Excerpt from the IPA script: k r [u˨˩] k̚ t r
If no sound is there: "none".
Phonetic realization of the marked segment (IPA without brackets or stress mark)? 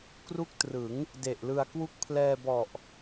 u˦˥